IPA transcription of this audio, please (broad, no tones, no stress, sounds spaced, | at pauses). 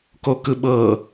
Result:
k o k ɯ ɓ ɤ